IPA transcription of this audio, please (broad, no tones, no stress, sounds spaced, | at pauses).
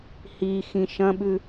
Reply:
h i x ĩ ʃ ɐ̃ ɓ ʉ